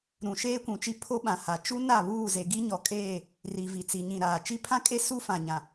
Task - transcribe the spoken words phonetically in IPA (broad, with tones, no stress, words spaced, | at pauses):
ɾũ˨ ʃeː˦kʷũ˨t͡ʃi˦ pʰo˦ɓã˨ha˨ t͡ʃu˦ na˦˨βuː˦˨ze˨ ɡi˦ɲɔ˨kʼeː˦˨ | ri˨vi˨t͡si˨ɲĩ˨ ɾaː˨ t͡ʃi˦pʰã˦kʼe˦ su˦fã˨ɲã˨